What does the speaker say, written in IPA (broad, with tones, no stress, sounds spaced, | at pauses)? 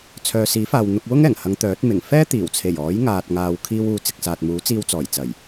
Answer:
t͡sʰ œː˨ s iː˨˥ f aː˨ w n̪ ʊ˧ k̚ w ʊ˥ ŋ ɛː˨˩ ŋ h ɐ˨˧ ŋ t̪ œː˨˥ t̚ m ɪ˨˩ ŋ f ɛː˥ t̪ iː˨˩ w t͡sʰ e˨˩ j ɔː˨˥ j ŋ aː˨ t̚ ŋ aː˨ w kʰ iː˧ w uː˨ t͡s ɪ˨ k̚ s aː˨ t̚ m uː˨˥ t͡s iː˧ w t͡s ɔː˨˩ j t͡s ɐ˨˩ j